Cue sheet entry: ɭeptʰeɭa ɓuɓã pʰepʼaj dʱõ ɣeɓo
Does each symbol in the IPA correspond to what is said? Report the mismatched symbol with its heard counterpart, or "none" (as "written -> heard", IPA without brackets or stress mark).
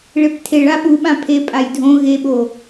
none